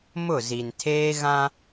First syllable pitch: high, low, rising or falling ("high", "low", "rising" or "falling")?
falling